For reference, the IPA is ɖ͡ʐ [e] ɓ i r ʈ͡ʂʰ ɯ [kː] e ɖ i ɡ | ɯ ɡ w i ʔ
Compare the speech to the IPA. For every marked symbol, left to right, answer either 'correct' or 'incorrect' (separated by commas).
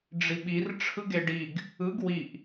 incorrect, incorrect